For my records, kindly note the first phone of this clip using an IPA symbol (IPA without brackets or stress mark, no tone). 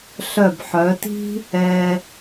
ɬ